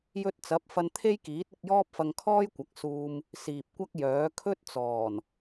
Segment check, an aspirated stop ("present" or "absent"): present